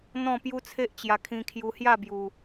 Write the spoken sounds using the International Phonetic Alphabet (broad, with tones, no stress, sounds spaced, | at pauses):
n̪ ɔ̃˥˧ p j u˦ t͡sʰ e˦ ʔ t͡ɕ j a˧ kʰ ĩ˧ kʰ j u˧ h j a˥˧ b j u˧